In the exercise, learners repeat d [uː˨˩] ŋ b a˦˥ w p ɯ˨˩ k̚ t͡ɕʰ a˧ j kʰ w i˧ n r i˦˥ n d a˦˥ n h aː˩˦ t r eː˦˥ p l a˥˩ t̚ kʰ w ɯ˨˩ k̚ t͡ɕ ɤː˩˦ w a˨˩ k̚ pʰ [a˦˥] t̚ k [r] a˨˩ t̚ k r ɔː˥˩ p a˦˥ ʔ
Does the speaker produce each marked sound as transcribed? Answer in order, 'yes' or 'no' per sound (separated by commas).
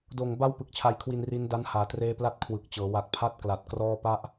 no, yes, no